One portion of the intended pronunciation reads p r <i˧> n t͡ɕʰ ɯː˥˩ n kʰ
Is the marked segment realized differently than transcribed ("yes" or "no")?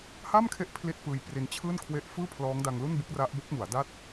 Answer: no